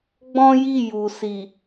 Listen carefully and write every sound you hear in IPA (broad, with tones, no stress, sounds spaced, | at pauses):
ɡ͡b ɔ̃˦ j i˦˨ j u˨ s i˨